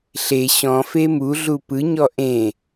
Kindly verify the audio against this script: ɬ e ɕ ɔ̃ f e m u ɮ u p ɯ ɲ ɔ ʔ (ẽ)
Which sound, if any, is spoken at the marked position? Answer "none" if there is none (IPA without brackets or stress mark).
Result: ẽ